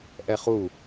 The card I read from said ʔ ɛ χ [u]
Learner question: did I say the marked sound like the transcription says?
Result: yes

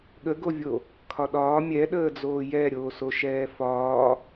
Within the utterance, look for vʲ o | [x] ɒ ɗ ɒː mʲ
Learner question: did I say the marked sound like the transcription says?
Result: no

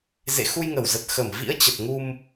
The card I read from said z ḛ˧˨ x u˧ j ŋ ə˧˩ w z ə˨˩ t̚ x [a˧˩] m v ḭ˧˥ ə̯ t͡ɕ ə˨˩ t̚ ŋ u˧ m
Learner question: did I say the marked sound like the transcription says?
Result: no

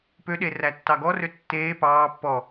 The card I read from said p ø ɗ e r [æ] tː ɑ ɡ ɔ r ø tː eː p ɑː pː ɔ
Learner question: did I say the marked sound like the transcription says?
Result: yes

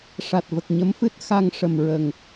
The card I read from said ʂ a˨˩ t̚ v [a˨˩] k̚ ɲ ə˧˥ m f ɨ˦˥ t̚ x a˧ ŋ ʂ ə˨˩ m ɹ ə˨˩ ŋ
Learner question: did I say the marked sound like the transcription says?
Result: no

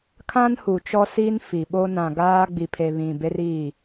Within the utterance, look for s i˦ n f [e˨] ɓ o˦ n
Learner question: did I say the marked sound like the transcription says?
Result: no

